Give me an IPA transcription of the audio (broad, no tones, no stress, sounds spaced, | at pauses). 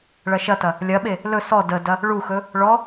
ɭ ɐ ʃ ɐ t ɐ | lʲ ɐ ɓ e | l ɵ s ɔ d ə d ɐ | ɭ u x ɵ | ɭ ɔ